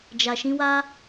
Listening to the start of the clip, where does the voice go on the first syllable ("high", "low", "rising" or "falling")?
low